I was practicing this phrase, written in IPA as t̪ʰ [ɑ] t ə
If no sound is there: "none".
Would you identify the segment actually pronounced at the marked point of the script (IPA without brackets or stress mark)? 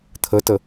ə